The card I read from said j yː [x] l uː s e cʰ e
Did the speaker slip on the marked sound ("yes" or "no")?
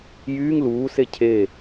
yes